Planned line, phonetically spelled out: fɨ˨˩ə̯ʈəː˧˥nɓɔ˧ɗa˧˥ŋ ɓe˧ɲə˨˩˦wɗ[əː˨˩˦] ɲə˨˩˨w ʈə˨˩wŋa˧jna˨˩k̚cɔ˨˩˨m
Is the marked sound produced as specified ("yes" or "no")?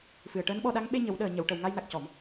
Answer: no